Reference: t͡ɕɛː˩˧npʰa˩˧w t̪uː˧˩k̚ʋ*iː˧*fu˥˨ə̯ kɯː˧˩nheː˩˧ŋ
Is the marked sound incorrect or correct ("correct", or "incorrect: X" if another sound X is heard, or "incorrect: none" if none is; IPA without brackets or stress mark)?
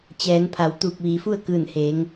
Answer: incorrect: iː˩